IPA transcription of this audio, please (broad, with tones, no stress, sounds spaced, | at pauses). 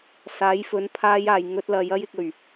s aː˨˥ j f ɵ˨˥ n pʰ aː˧ j aː˨ j ŋ ɵ˧ t̚ l ɐ˨˧ j ɐ˥ j ɪ˧ k̚ ɵ˨˩ ɥ